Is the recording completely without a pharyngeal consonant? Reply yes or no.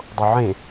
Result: no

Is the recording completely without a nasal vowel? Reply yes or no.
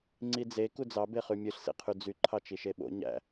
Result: yes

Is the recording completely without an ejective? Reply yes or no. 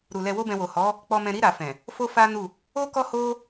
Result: yes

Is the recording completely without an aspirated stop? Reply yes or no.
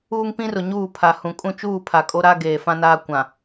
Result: no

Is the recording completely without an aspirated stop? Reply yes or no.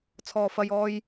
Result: no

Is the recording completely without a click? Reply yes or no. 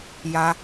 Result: yes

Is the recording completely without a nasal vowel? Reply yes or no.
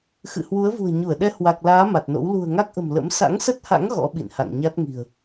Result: yes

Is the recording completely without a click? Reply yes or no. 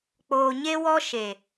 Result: yes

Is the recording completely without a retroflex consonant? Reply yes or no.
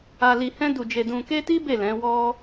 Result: yes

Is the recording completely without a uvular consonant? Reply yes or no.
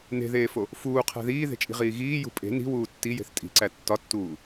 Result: no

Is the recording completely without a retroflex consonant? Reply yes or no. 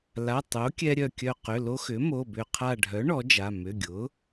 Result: no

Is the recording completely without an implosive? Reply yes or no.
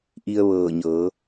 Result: yes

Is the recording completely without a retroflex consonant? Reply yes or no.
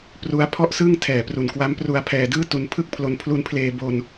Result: yes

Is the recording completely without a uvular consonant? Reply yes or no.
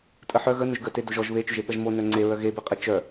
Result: no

